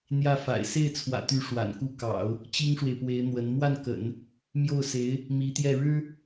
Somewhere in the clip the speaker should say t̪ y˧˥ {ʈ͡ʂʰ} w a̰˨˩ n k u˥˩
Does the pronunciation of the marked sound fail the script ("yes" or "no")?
yes